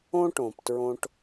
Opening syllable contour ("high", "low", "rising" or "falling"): high